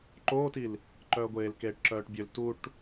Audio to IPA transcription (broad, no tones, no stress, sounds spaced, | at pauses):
ǃ oː t i l | ǃ œː ɡʷ eː l k eː ʈ ǁ œː ʈ bʲ ø l t u ʈ